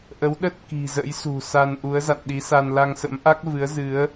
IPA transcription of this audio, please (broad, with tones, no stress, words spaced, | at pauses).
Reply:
ʔə˨˦wɗə˦˥t̚ ki̤˨˩zə̰˧˥jsṳ˨˩sa˧n ʔu˨˦ə̯za̰˧˨nɗi˨˦sa˧n la˧ŋsə̰˧˥mʔa˦˥k̚vɨ˨˦ə̯ zɨ˨˦ə̯